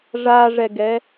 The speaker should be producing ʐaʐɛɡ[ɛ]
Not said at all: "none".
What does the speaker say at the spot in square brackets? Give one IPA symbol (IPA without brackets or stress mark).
ɛ